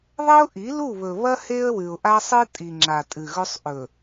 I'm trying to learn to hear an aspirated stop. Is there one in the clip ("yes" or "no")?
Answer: no